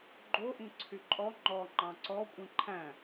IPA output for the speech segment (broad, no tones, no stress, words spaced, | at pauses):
ɡ͡ǃoʔĩ ǀʰyǃʼɔ ŋ͡ǃɔ ŋ͡ǃɑ̃ǀɔ kʷʼĩǃʰæ̃